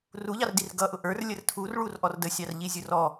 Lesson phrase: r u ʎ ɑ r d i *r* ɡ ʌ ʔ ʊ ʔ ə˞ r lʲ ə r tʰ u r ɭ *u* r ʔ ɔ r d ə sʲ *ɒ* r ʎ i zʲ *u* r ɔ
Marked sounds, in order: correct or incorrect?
correct, correct, incorrect: ɑ, incorrect: ʊ

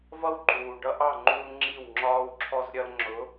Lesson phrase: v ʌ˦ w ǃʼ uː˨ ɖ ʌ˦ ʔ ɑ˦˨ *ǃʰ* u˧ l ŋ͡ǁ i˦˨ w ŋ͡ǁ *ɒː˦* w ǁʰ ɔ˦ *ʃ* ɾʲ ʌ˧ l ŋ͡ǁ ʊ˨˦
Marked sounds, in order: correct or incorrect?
incorrect: ŋ͡ǃ, correct, incorrect: z

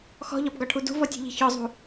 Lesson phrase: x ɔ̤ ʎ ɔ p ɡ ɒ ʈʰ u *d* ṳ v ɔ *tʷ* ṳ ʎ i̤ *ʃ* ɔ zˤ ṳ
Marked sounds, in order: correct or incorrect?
correct, incorrect: tʲ, incorrect: ç

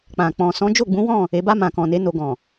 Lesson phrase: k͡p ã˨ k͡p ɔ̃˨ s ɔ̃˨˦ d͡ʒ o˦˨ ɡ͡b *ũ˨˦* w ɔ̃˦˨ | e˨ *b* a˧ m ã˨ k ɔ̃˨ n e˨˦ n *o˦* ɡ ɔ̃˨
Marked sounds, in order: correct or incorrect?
correct, correct, incorrect: o˧

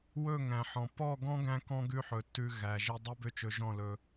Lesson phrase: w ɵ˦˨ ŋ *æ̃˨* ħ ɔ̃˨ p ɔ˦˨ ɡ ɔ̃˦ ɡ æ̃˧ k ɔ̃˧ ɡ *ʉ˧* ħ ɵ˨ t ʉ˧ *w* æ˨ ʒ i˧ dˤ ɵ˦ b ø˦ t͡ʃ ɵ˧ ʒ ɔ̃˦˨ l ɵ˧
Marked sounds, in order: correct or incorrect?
correct, correct, incorrect: ɣ

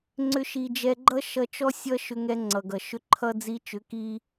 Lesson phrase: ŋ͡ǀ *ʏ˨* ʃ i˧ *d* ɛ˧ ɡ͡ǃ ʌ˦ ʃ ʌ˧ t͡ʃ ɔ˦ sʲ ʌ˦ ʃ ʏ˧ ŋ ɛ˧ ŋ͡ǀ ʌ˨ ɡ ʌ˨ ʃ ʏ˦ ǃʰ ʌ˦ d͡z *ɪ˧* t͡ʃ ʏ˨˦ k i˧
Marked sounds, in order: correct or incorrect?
incorrect: ʏ˦, incorrect: d͡ʒ, incorrect: i˧

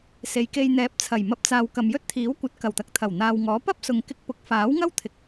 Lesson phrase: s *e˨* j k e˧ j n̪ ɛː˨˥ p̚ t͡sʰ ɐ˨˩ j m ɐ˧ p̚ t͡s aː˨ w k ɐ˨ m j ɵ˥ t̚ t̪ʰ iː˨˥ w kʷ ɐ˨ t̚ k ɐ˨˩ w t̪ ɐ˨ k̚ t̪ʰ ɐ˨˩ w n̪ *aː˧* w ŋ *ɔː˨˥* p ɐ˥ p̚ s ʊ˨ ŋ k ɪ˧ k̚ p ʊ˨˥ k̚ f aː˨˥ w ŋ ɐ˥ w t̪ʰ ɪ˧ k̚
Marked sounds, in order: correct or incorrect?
correct, incorrect: aː˨, correct

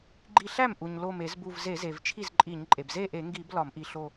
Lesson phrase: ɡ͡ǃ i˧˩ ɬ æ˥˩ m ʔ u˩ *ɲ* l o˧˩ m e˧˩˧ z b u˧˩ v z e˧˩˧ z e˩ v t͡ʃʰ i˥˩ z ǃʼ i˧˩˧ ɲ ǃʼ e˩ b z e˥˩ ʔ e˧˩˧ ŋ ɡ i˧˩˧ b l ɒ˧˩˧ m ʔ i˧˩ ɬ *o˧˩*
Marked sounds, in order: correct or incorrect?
correct, correct

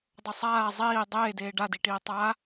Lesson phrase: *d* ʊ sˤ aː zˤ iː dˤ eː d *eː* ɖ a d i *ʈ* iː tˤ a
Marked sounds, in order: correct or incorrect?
incorrect: dˤ, correct, correct

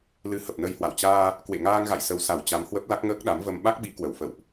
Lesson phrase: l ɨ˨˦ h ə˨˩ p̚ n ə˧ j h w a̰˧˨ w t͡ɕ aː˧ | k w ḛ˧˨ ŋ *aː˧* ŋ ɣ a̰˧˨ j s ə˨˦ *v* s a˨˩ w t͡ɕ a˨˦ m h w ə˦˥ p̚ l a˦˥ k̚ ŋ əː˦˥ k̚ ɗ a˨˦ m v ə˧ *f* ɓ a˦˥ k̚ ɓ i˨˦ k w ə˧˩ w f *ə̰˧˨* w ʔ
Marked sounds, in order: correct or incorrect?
correct, incorrect: w, incorrect: m, correct

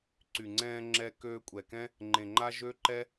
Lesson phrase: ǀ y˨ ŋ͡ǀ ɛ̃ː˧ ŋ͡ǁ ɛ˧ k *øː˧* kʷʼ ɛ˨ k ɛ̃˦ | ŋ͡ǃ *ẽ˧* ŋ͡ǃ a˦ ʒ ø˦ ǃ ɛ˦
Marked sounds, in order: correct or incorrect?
correct, incorrect: ẽ˨

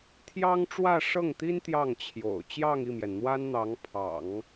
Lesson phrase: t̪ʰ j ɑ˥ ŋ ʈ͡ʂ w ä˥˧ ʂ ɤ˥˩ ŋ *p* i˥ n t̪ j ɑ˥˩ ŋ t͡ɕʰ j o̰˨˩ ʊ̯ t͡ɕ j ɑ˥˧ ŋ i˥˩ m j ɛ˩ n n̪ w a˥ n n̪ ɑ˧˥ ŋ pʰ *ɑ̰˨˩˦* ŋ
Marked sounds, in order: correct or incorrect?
incorrect: t̪, correct

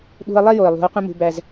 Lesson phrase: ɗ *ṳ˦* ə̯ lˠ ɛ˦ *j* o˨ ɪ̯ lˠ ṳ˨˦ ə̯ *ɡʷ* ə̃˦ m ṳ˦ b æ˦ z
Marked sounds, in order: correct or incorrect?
correct, correct, incorrect: qʷ

